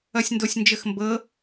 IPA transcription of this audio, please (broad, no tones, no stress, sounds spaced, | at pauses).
ʌ sʲ n d o sʲ n d͡ʒ ə x m b ɤ